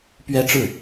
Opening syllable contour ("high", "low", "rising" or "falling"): high